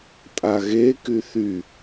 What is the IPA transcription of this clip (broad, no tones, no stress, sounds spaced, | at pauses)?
tʼ a ɣ e k y θ y